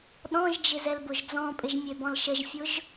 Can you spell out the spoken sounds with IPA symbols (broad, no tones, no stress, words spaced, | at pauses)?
ɗɔ̃ʒd͡ʒɪ zɛlbʊʒd͡zɔ̃pʼɪʒ mʲebɔ̃lʃəʒfʲʊʒ